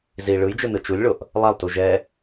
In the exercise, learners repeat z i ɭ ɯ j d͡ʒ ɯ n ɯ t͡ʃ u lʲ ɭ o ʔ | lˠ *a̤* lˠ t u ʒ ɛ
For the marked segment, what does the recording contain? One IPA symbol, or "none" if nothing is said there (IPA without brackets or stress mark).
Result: a